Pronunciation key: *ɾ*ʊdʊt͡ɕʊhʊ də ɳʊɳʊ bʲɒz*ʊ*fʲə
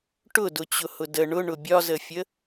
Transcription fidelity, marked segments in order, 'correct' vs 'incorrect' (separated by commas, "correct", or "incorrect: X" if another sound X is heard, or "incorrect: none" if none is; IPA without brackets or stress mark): incorrect: ʈ, incorrect: ə